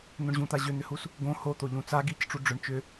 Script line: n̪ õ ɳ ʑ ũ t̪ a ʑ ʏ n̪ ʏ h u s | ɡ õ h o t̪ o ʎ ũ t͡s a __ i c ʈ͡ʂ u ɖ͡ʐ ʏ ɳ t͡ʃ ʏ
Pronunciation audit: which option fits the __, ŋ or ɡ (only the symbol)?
ɡ